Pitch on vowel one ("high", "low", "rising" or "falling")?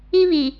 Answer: high